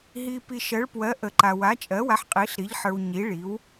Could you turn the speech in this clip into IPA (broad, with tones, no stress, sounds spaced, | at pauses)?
ɦ i˨ p i˨ ʃ ɜ˩˥ ɭ p w ɜ˩˥ ʔ ə˨ ǃ a˨ w a˩˥ t͡ʃʼ ɜ˩˥ w a˩˥ ħ qʼ i˩˥ ɬ ɾ i˩˥ ʎ ħ ə˞˨ w ɲ i˩˥ ɭ i˩˥ w